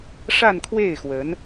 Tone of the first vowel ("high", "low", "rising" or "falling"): falling